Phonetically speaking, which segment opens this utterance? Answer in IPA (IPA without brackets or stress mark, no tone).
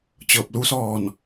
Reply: t͡ɕ